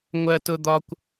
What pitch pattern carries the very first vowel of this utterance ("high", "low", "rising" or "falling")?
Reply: high